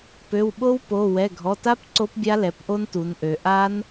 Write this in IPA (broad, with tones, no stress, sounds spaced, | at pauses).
p ø˩˧˩ w ɓ o˦˥ w p o˩˧˩ w ɛ˩˧˩ ɡʱ ɔ˩˧˩ t a˦˥ p ǀ o˦˥ p bʲ a˦˥ l ɛ˩˧˩ p ʔ o˦˥ n t u˩˧ n ʔ ø˩˧ ʔ a˦˥ n